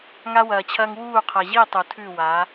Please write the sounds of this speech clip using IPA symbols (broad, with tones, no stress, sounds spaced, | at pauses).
ŋ a˧ w ɐː˨ t͡ɕʰ ɐː˧ ŋ w uː˦˨ qʰ ɐ˨ ʑ i˦˨ tˤ u˨ tʰ ʉ˦˨ w a˨˦